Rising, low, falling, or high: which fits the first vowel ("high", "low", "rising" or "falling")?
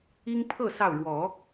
high